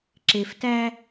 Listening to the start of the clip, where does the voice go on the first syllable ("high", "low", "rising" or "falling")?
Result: low